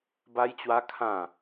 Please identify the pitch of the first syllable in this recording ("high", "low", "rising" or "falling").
high